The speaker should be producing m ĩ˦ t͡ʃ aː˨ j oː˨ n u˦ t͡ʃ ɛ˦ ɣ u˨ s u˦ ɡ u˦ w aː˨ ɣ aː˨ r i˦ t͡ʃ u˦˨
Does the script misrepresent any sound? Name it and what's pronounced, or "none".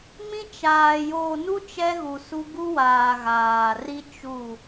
none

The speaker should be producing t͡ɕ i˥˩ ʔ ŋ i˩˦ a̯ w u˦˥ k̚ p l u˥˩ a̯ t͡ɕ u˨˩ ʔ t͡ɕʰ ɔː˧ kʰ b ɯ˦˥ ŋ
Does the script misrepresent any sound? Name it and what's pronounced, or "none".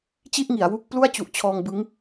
kʰ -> ŋ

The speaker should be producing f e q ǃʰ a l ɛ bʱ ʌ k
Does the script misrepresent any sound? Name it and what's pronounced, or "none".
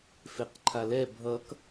none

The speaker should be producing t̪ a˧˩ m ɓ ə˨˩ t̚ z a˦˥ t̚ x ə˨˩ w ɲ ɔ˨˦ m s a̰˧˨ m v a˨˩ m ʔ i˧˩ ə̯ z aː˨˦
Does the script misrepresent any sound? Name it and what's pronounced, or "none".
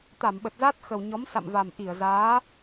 none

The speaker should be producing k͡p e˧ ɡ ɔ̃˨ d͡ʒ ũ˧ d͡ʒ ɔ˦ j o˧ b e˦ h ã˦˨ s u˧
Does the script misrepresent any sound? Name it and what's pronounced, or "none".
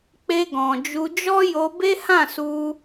ũ˧ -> u˧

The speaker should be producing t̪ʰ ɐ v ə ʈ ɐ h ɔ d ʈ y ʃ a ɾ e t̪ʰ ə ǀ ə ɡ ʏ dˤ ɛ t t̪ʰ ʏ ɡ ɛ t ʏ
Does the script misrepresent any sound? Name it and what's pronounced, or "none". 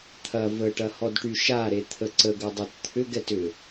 none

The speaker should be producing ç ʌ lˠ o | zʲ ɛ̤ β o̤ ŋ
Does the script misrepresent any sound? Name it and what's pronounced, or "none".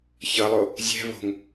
none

